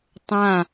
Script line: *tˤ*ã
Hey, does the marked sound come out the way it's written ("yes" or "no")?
yes